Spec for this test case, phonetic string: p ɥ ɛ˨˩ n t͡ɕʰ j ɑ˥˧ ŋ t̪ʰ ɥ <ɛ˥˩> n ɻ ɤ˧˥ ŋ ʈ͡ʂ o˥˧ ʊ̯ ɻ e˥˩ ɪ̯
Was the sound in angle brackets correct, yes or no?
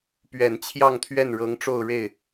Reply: yes